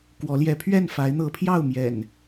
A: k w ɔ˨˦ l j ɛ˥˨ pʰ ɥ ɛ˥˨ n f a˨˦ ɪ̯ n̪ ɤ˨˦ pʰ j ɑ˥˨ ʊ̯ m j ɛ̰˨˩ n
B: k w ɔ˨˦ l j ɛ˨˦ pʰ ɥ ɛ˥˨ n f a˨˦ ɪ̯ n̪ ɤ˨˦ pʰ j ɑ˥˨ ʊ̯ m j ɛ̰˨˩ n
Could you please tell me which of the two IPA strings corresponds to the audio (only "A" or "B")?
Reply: B